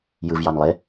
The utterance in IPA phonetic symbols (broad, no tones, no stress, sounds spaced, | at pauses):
j ɯ v j ɑ n lˠ e